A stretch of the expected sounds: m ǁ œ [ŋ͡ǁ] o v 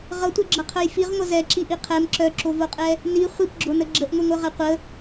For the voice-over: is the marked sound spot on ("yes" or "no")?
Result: no